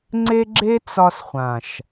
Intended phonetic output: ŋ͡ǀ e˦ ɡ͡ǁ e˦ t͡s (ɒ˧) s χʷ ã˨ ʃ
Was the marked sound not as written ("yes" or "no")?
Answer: no